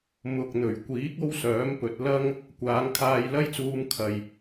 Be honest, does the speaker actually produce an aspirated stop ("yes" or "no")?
yes